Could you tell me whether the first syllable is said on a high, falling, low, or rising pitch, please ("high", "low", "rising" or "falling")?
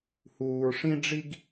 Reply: low